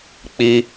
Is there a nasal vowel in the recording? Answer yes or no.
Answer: no